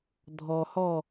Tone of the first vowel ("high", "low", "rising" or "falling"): low